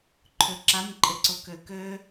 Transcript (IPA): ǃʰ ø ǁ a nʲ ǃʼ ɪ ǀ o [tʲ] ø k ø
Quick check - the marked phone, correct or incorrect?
incorrect